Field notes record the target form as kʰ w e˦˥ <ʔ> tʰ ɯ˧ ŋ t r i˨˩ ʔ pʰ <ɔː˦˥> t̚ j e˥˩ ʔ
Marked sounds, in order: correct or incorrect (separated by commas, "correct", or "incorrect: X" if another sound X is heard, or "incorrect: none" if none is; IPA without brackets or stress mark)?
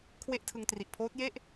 correct, incorrect: oː˦˥